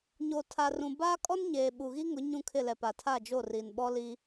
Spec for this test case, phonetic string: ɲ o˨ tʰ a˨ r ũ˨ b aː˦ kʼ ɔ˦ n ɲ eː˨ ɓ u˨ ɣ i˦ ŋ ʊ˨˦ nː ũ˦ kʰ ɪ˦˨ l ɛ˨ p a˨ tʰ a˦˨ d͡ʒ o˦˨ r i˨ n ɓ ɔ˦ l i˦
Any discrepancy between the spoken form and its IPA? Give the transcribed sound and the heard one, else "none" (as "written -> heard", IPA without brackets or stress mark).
nː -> ɲ